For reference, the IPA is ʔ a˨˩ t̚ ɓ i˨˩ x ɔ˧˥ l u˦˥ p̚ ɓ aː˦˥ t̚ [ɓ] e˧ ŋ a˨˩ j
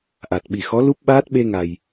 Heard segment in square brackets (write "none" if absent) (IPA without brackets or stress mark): ɓ